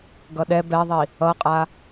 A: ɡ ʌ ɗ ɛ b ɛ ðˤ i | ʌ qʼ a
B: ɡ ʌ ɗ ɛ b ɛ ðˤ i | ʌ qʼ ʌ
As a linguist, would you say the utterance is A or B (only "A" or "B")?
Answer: A